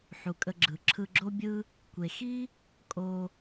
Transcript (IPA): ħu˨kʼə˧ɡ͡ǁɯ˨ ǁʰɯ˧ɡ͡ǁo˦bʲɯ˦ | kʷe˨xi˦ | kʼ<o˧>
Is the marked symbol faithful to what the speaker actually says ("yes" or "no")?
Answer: yes